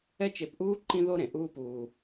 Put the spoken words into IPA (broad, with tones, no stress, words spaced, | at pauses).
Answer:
ɛ˦t͡ʃe˧pʔuː˦ ǃĩ˦ðo˦ɾẽ˨ ʔuː˦puː˧